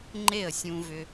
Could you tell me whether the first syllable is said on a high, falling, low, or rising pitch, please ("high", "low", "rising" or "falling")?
falling